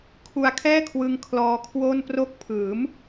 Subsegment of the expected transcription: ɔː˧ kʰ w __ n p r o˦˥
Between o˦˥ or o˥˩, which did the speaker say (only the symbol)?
o˥˩